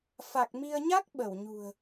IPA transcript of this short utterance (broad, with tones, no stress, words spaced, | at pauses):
fa˨˩k̚mi˧ə̯ ɲa˦˥k̚ ɓə˧˩wɲṳ˨˩ə̯